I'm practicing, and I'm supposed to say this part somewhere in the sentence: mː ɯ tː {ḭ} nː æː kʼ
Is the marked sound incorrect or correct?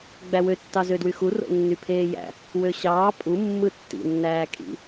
correct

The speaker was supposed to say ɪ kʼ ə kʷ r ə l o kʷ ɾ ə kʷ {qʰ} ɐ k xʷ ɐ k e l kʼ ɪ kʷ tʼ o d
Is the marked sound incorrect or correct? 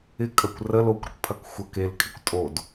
incorrect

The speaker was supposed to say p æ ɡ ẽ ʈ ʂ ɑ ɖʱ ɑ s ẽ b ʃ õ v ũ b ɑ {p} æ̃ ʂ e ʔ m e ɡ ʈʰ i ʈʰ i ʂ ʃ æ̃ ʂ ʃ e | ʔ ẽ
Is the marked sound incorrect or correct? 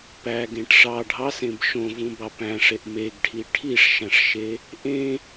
correct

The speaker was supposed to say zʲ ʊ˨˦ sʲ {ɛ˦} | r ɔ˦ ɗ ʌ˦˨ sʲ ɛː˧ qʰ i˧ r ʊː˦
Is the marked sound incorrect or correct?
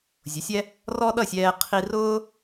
correct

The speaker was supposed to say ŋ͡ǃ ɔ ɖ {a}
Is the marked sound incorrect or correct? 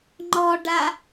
correct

